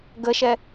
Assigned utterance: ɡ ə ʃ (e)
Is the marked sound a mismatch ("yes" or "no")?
yes